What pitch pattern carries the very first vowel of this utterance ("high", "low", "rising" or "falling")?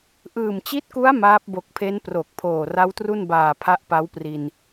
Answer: low